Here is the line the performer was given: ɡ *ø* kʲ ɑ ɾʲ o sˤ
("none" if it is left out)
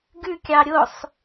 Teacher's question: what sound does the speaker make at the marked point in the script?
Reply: ʉ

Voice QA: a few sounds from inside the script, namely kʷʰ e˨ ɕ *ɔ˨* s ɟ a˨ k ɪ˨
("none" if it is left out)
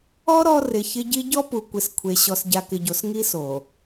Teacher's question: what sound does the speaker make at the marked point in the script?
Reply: ɔ˨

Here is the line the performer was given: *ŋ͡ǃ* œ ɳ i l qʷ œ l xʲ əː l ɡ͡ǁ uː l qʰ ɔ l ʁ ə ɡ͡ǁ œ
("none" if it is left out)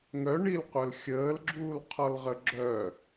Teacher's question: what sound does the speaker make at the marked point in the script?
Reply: ŋ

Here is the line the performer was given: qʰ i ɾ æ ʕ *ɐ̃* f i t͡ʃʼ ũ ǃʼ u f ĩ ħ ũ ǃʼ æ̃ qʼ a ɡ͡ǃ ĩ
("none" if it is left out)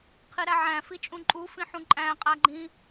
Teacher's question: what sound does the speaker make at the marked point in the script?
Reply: æ̃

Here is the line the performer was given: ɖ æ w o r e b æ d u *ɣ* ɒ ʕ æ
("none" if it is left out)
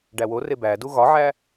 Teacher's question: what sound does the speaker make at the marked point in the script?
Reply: ɣ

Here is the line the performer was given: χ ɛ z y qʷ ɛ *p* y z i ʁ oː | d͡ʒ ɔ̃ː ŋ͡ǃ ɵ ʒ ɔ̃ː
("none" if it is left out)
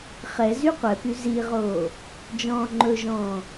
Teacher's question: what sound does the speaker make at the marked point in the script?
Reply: p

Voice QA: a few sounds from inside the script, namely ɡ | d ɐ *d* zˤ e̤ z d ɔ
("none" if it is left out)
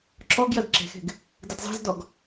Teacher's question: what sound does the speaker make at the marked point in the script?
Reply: d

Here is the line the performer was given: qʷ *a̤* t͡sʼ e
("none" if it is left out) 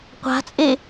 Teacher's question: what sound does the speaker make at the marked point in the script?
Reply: a̤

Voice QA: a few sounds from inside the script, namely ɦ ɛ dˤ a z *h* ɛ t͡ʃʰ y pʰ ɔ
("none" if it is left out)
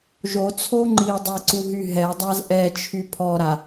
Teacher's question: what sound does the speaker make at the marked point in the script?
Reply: ʔ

